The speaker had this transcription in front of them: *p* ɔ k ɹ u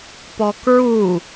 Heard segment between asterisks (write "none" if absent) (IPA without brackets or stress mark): p